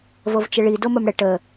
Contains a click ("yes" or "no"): no